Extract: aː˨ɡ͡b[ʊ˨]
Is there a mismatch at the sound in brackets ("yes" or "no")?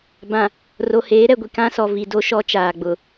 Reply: no